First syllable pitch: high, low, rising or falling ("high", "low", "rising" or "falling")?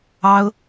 high